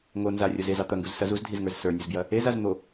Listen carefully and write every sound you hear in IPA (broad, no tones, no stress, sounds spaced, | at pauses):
ŋ o n z a rʲ o z e z ɑ t̪ ɐ ŋ ɡ u z s ɐ z u z dʱ i z ŋ ə˞ z s ə˞ nʲ u z b j ɐ | e z a z n̪ o